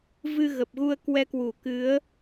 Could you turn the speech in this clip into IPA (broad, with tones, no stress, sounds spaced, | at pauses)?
v ɨ˧ ɣ ə˨˩ p̚ ɣ u˧ ə̯ k w ɛ˧ k w u˧˩ k ɨ˨˦ ə̯